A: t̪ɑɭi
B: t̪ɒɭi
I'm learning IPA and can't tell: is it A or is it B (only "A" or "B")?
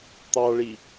A